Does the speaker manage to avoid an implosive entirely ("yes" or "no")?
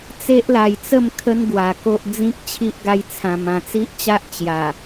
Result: yes